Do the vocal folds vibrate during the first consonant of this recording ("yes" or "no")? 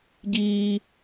yes